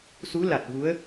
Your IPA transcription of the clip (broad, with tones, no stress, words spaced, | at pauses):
su˧˥la˨˩t̚ vu˧˥ə̯